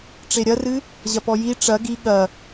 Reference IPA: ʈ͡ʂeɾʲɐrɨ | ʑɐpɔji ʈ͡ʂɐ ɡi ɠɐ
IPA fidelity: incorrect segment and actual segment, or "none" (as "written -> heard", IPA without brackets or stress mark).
none